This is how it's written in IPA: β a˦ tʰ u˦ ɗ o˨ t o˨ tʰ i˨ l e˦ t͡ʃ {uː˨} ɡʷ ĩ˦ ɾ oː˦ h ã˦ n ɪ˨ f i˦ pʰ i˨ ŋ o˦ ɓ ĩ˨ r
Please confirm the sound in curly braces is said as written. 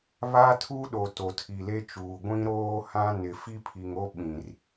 yes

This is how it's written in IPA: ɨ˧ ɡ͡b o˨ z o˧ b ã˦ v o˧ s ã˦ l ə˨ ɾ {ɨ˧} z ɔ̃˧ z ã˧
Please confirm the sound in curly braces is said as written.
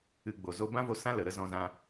no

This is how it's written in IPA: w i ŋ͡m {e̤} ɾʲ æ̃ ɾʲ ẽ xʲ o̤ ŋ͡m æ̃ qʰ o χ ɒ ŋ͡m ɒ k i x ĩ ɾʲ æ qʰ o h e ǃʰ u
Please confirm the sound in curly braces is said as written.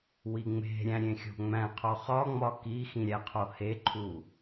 yes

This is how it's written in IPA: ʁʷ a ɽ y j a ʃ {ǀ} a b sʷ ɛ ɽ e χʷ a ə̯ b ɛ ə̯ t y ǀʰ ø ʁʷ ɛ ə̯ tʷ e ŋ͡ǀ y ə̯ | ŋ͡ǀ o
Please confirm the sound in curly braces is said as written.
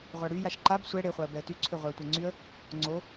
no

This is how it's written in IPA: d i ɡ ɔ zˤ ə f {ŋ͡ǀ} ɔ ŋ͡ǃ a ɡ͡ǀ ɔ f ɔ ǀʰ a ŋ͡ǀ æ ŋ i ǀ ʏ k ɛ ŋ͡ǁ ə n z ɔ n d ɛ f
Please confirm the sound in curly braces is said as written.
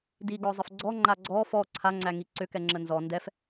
no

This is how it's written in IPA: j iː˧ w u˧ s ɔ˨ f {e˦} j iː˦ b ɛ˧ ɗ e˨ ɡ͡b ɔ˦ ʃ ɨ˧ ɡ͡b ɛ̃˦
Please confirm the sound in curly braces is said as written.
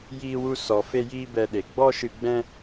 yes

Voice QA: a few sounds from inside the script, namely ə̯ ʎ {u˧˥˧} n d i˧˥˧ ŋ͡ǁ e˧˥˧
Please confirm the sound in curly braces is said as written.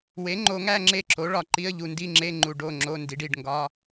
no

